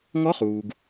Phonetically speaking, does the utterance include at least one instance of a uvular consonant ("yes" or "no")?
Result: yes